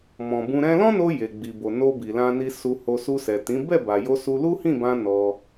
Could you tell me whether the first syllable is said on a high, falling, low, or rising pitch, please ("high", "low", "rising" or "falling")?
low